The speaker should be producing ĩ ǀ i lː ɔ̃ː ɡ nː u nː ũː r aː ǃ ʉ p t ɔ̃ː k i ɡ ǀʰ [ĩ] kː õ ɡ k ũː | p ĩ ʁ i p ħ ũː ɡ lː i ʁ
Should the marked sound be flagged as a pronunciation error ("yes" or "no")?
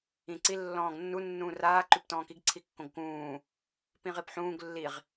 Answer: yes